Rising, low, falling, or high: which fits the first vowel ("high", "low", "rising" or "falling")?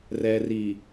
low